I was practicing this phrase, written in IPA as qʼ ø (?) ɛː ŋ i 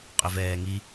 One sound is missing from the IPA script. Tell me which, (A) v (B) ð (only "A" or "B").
A